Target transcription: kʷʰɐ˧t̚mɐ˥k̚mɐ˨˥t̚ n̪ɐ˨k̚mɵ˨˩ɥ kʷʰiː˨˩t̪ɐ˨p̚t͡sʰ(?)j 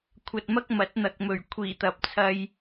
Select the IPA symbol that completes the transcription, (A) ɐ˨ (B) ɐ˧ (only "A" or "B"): B